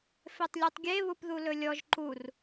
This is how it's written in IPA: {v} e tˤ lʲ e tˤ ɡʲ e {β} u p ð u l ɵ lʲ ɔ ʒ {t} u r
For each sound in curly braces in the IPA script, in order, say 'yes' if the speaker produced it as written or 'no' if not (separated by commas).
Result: no, yes, no